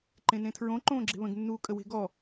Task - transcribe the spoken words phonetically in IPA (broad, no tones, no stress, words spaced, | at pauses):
ǃẽnẽtʰɹõ ǃõːɡ͡ǁe̤βə̃ɡ nːuːkʼəwe̤ɡɔ